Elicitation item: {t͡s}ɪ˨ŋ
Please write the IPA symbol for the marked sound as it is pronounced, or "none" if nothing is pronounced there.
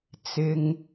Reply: t͡s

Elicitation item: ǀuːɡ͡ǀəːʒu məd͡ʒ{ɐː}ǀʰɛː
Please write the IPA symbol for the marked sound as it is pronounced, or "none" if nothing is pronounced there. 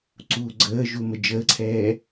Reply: əː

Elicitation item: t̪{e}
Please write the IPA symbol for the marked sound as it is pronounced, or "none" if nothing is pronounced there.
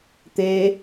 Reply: e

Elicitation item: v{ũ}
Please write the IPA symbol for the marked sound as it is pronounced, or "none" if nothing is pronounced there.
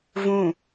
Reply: ũ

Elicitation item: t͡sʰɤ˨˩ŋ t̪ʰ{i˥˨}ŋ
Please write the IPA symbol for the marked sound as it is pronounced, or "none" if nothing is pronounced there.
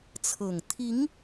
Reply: i˨˦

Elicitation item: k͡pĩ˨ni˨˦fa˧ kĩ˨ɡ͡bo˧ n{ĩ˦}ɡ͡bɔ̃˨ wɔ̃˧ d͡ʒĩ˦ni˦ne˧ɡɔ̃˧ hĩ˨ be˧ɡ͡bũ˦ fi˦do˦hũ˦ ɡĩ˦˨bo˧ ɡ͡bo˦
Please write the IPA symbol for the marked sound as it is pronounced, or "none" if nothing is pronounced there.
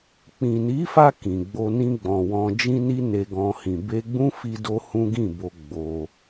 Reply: ĩ˧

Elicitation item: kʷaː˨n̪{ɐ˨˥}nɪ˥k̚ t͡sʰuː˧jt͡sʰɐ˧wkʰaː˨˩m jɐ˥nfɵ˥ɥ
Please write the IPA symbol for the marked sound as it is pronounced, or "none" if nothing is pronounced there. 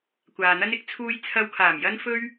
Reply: ɐ˥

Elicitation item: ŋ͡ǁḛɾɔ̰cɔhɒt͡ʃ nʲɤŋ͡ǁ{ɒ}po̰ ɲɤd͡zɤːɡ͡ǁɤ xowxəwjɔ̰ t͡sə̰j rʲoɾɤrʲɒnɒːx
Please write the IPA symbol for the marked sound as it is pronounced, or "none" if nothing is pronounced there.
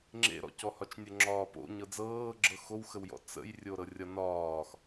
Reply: ɒː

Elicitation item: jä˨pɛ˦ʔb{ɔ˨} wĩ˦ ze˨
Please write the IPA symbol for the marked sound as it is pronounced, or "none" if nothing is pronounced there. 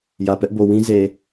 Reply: o˨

